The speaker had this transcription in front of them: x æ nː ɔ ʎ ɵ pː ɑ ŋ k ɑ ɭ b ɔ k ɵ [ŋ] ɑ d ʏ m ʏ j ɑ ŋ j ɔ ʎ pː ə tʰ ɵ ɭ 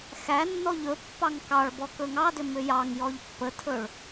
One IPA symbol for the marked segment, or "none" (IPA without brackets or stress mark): ŋ